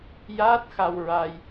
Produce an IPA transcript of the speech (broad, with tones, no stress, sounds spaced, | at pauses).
j aː˦˥ t̚ x a˧ w ɹ a˧ j